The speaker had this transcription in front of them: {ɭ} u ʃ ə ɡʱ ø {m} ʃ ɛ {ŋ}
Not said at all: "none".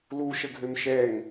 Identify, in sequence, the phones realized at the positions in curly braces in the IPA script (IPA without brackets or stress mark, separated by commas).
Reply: l, m, ŋ